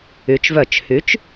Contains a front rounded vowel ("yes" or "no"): yes